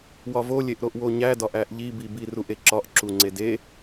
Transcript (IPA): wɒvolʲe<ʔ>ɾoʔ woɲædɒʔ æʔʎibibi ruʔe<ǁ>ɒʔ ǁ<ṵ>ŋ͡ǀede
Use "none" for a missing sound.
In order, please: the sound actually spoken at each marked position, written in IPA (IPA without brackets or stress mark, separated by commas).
ʔ, ǁ, u